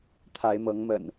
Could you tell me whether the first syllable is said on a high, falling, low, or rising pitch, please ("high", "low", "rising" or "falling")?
rising